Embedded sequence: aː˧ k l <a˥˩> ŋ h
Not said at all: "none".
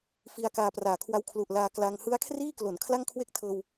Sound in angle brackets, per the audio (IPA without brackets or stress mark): a˧